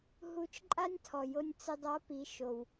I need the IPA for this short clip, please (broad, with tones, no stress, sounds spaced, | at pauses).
ɦ u˧˥ t͡ʃ ǃʼ a˥ nʲ tʰ ɔ˩ j o˧ nʲ t͡s ɪ˧ dˤ a˧˥ p i˩˧ ʃ o˩ w